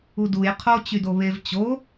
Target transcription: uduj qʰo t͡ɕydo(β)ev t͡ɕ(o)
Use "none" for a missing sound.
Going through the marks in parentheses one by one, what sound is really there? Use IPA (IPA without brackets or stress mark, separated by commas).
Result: β, o